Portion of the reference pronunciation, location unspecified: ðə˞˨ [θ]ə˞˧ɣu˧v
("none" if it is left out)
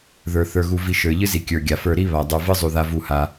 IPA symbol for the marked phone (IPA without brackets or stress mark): θ